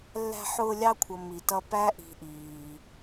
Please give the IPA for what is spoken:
lː æ̤˦ ħ ʊː˦ lʲ ɑ˥ kʷʰ ʌ˨ m i˩ t ʌ˦ p æ˥ ʔ i̤˨ ʔ iː˩

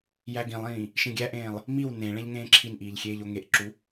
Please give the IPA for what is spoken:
j æ ɡ ĩ lˠ ĩː | ʃ ĩ ɡʲ æ ʔ ẽː lˠ | m i w n ẽ ɭ ẽ ʎ ŋ ẽː ǁʰ i n ʔ iː ʎ xʲ eː ʎ o ŋ e ʔ ǁ u

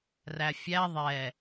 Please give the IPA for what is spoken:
r æ fʲ æ ðˤ ɛ

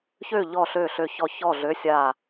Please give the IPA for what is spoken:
ç ø˥˨ ʎ ɔ˥˨ ɬ ø˥˨ ɬ ø˥˨ ç ɔ˥˨ ç ɔ˥˨ ɮ ø˧˥˧ sʲ a˥˨

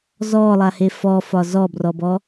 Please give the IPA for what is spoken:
z ɔ lˠ a h e f ɔ f ɒ z ɔ b r ɔ b ɔ

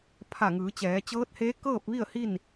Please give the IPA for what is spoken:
pʰ a˧˩ ŋ ɯː˩˧ t͡ɕ ɛː˩˧ t͡ɕ ɤː˧˥ t̚ h eː˧˥ k ɤː˥˨ p̚ ʋ i˥˨ ə̯ h i˥˨ n

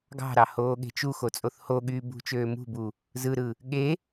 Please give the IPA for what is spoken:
ɡ ɑ̤ ɾ ɑ h oː ɠ e̤ t͡ʃ u x o t͡sʼ o θ h o ɠ yː b ṳ t͡ʃ øː m ṳ b u | z ɯ ɾ ɯ | ɠ e

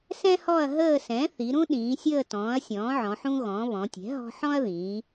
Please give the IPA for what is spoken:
s ɛ̃˦ h ɔ˦˨ ɐ̯ ɦ əː˦˨ s ɛ̃˩˥ θ i˩˧ ɾ ũ˦ ɗ ĩː˩˧ sʲ əː˦˨ t ɔ̃ː˩˥ ɐ̯ sʲ ɔ̃ː˩˥ ʕ ɔ̃˩˧ ħ ũ˦ ɣ ɔ̃˩˧ β ɔ̃˩˧ tʲ ɛ̤˩˥ ɦ ɔ̤˦ ħ ɔ̃˦ ɐ̯ ð ĩː˩˧

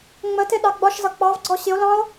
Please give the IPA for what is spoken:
ŋ͡m ə t ɪ ɗ ɑ ɡ͡b ɒ ʃ z ʌ k͡p ɑ v ɡ͡ǀ ɔ ɕ ɪ o̯ l ɑ̃ o̯

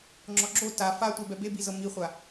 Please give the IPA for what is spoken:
ŋ͡ǁ ɔ ɡ͡ǁ o t a f a tʷ e b ɛ b e b i z ɤ m i χʷ a

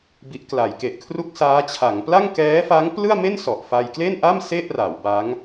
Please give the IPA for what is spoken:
b i˦˥ ʔ k l a˩˦ j k e˨˩ ʔ kʰ r u˥˩ k̚ s aː˦˥ t͡ɕʰ a˩˦ ŋ p l a˥˩ ŋ k ɛː˦˥ f a˦˥ ŋ p l ɯ˥˩ a̯ m e˥˩ n s ɔ˨˩ ʔ f a˧ j k l e˥˩ n ʔ a˥˩ m s e˥˩ ʔ r a˩˦ w b a˦˥ ŋ

